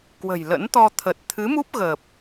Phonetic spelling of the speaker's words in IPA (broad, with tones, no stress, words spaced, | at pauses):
kwə̤˨˩jlə̰˧˥nt̪ɔ˧ t̪ʰə˨˩t̚t̪ʰɨ˨˦mu˦˥p̚ ɣə˨˩p̚